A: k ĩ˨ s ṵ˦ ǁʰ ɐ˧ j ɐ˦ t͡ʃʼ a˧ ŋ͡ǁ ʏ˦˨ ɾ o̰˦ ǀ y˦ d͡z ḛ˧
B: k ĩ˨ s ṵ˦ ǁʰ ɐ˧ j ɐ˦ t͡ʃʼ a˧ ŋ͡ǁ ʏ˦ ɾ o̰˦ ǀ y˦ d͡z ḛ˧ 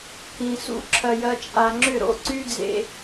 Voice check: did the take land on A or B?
A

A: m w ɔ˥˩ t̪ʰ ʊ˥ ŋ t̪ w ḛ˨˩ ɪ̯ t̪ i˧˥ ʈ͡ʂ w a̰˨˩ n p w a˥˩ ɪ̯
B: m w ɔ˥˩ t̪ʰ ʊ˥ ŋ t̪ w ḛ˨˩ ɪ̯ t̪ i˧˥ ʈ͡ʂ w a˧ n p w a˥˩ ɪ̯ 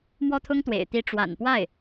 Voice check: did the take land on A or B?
A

